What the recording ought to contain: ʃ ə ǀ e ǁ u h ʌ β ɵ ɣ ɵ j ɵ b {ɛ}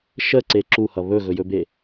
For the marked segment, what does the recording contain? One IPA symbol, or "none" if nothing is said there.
e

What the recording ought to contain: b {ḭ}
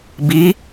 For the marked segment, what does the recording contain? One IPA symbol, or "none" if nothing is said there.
i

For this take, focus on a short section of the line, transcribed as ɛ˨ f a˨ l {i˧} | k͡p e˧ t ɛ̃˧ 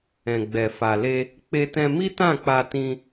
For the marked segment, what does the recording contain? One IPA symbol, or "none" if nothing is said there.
e˧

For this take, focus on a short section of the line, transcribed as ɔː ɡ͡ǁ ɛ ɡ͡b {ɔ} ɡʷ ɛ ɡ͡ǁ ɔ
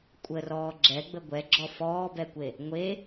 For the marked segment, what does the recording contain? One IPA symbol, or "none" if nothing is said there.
ə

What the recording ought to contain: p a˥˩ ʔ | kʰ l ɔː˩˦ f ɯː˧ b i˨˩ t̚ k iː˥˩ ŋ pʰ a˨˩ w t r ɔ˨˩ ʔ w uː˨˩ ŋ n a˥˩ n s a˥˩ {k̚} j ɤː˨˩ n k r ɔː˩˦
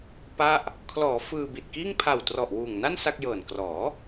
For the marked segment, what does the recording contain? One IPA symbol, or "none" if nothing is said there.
k̚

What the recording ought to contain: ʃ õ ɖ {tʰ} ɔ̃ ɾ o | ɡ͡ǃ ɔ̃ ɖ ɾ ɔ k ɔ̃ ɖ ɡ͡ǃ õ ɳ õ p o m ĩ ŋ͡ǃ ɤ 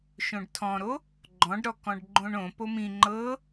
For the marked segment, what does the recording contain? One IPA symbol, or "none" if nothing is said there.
tʰ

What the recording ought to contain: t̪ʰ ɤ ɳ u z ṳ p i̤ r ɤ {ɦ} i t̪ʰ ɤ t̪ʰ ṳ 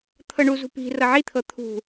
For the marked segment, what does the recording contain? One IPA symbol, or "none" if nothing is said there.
ʕ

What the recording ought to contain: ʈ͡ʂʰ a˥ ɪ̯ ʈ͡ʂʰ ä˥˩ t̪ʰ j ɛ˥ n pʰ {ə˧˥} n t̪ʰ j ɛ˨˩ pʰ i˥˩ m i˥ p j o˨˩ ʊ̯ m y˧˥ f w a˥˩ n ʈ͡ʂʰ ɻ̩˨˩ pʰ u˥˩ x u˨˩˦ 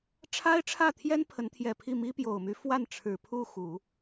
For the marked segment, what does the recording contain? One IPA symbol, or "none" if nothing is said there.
ə˧˥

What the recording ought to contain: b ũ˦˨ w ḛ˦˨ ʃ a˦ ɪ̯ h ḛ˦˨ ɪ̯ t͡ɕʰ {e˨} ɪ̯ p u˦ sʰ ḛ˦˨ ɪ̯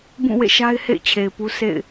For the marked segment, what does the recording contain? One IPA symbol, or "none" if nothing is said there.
e˨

